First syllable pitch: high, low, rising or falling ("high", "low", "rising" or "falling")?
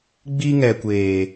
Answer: high